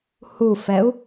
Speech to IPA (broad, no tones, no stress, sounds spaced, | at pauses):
h u f ɛ u̯